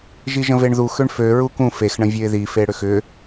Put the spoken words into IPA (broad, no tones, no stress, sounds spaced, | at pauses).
ʒ i ʒ ə̃ v e ɳ ð u x ø ɳ f ø ɹ u k ũ f e x ɳ ə̃ vʲ ø ɪ̯ ð i f e ɽ ʏ x ʏ